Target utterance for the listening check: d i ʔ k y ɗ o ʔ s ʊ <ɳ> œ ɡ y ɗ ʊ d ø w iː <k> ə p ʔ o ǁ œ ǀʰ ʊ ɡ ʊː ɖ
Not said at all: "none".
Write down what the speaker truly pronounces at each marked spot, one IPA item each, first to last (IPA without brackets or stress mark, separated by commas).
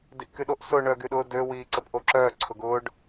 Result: ɳ, ǀ